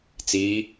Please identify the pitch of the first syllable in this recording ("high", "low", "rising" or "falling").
rising